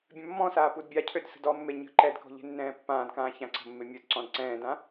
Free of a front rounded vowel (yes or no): no